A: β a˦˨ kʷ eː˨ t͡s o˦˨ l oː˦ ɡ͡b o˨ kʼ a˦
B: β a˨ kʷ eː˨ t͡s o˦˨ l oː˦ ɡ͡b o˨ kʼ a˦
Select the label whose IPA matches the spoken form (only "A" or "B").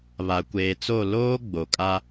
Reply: B